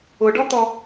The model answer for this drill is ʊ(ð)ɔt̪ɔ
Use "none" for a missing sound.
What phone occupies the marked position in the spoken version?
ɖ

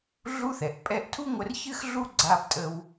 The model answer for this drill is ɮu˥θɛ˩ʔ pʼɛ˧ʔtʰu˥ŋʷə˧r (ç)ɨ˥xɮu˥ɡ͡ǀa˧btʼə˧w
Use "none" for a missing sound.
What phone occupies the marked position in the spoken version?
ç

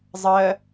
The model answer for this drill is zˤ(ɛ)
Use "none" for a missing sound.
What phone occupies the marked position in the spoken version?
ɜ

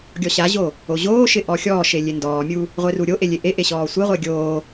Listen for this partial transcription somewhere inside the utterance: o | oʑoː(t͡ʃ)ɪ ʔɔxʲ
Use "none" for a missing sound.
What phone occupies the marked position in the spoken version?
ʃ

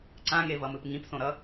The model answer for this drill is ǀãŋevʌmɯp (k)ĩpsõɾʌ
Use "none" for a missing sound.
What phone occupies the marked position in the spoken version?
ŋ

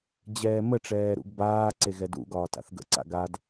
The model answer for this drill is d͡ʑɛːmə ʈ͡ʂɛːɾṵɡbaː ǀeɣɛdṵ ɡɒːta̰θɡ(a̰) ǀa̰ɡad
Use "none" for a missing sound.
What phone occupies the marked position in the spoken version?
ə̰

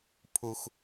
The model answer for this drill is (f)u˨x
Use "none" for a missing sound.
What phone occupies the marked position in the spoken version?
pʰ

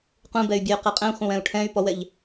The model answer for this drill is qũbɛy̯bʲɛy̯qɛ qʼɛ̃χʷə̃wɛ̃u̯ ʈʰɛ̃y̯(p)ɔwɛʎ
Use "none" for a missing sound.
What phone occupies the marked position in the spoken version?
p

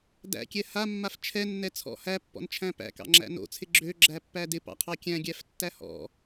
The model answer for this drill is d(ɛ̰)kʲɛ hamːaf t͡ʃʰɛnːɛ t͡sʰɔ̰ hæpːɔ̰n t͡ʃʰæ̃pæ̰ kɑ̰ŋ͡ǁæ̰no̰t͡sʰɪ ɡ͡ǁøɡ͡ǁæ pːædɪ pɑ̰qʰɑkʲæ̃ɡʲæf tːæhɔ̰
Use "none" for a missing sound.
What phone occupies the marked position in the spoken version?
æ̰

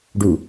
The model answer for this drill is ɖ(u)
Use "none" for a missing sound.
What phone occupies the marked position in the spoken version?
u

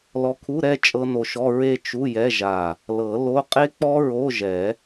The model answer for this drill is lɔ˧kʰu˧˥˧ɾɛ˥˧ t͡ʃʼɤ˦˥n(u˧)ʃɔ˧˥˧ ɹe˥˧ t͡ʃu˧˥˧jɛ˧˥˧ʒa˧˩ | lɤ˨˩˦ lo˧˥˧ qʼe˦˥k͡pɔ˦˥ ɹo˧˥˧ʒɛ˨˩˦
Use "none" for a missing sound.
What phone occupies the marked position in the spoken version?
o˧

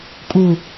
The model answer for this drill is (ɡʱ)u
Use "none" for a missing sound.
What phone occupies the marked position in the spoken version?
kʼ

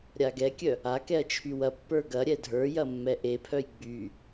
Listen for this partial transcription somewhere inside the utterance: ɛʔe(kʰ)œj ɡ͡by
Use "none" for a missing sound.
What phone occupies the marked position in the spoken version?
pʰ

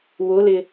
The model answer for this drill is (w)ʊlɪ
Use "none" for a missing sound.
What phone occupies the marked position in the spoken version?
w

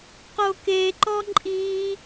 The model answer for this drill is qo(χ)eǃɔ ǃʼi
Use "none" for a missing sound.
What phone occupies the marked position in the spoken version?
k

